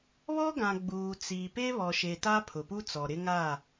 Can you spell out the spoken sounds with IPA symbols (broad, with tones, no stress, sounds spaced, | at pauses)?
β ɔ˦ ɡ ã˨ ɡ͡b uː˨ t͡s iː˨ p e˦ β ɔ˨ ʃ e˨ t a˦ pʰ ʊ˨ p u˦ t͡s ɔ˨ ɾ ɪ˦ ŋ a˦˨